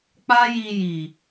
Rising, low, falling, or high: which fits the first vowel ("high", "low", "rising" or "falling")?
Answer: high